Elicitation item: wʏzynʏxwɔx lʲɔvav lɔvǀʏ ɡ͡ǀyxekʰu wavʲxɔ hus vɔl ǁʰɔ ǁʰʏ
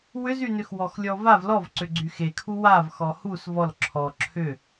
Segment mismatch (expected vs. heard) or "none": vʲ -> v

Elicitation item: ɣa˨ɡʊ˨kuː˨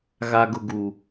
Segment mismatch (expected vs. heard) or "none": k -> ɡ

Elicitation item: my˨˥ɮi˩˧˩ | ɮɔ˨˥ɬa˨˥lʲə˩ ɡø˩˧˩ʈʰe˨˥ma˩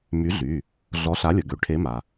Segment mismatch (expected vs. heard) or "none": i˩˧˩ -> y˩˧˩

